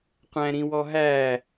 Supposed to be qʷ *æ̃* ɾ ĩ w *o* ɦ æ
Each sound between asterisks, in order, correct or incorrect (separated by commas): correct, incorrect